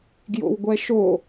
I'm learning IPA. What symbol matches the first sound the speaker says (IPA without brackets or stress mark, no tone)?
ɡ